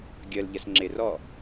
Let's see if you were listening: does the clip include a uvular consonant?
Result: no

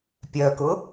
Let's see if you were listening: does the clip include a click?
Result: no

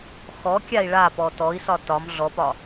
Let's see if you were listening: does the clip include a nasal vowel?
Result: no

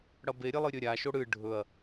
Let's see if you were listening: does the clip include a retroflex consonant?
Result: yes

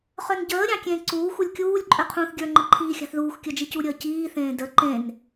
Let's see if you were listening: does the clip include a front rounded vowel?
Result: yes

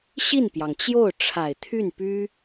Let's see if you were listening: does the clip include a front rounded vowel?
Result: yes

